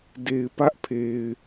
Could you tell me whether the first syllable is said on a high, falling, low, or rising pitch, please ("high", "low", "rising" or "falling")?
low